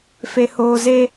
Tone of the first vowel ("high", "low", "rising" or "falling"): low